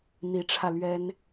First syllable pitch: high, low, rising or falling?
rising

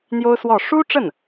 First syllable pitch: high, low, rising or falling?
high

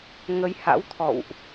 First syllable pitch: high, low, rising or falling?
rising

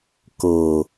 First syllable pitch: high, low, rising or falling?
low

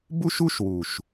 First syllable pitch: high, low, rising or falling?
high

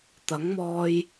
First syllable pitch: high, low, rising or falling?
rising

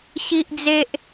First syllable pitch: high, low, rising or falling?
high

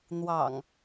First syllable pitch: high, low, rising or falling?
low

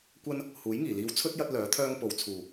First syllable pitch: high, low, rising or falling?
high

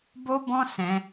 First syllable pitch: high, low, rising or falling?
high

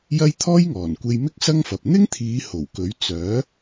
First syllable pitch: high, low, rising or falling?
high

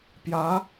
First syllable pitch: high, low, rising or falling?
rising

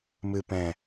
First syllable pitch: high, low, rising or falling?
low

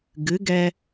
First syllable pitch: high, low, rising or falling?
rising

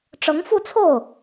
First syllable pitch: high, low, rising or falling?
rising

